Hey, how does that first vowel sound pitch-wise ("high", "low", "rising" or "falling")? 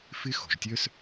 high